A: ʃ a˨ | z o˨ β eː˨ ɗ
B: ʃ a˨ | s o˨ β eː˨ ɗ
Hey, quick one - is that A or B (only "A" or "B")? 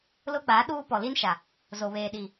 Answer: A